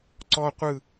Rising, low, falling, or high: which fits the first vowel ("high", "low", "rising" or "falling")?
high